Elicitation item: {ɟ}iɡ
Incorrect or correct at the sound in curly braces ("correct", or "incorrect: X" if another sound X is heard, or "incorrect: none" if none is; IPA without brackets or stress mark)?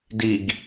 incorrect: d